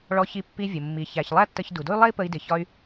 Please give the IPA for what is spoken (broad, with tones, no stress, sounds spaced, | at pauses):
ɭ ɔ˧ ç i˧ pː i˧ vʲ ʊ˩ mː i˩ ç æ˩ ç lˠ æ˥ tː ə˧ ç d u˩ d ʊ˥ y̯ lˠ ɛ˥ i̯ p ə˧ i̯ d ɪ˩ ç ɒ˧ y̯